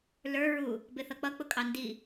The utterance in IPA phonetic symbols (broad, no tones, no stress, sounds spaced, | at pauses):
l ə˞ ɹ u | b ɪ θ ʌ k͡p ʌ k͡p ʊ kʼ ɑ n d i